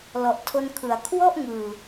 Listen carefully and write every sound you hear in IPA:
l ɔ˨˩ ʔ tʰ o˧ n kʰ ɯ˩˦ a̯ kʰ w ɔ˥˩ ʔ ŋ ɯː˨˩

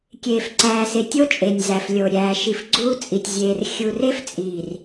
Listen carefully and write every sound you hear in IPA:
kʲ eː˨ f ǀ æː˨ s e˨ tʲ o˦ t͡ʃʼ e˨ nʲ z æ˨ f lʲ o˨ ɾʲ æː˨ ʃ i˨ f ɡ͡ǀ uː˦ t͡sʼ i˨ tʲ zʲ eː˨ r xʲ u˨ r e˦ f t͡sʼ iː˨ r

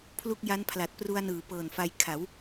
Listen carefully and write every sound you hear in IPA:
pʰ l u˥˩ k̚ j a˦˥ n pʰ l a˨˩ t̚ p r u˧ a̯ n ɯː˩˦ p ɤː˨˩ n f a˧ j kʰ a˩˦ w

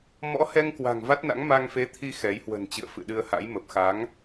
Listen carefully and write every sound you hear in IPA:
m ɔ̰˧˥ h ɛ˧ ŋ k w a̤˨˩ ŋ v a˦˥ t̚ n a̰˧˥ ŋ m a˧ ŋ f e˨˦ t̪ʰ i˧ x ɛ˨˦ j h w ə̤˨˩ n t͡ɕ ɨ̰˧˨ ə̯ f ɨ̰˧˨ ɗ ɨ˧ ə̯ h a̰˧˥ j m ə˨˩ p̚ x a˨˦ ŋ

